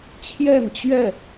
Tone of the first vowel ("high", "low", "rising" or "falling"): falling